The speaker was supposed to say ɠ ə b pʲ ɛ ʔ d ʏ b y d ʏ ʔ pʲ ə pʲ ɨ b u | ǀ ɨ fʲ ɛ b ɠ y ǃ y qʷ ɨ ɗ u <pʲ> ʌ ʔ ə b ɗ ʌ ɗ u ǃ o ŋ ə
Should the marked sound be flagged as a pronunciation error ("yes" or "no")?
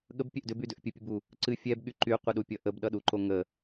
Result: no